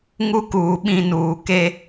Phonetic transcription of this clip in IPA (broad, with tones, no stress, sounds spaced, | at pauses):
ŋ u˦ k uː˨ ɓ ĩ˦˨ n uː˨ k e˦